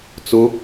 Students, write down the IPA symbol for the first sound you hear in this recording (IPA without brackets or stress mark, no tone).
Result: t͡s